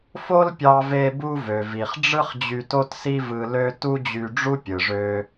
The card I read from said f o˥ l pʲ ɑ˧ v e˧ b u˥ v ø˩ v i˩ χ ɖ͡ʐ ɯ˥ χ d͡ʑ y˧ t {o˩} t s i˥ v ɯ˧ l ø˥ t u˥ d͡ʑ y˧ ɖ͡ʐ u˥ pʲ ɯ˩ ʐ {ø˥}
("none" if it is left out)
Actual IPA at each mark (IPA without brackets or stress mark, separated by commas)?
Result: o˥, ø˧